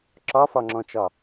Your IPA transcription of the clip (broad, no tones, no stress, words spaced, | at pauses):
ǁɒfɒŋ͡ǁɔ̃t͡ʃɒ